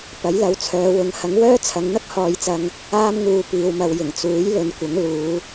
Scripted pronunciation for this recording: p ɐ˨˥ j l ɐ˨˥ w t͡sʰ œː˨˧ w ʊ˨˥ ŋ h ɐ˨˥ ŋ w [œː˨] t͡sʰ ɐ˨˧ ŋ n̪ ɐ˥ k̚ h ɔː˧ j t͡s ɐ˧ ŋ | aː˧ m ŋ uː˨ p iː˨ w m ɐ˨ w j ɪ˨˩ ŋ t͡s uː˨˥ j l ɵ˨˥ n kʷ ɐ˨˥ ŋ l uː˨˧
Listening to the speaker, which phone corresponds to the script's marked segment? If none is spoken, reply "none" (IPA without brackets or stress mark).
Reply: œː˥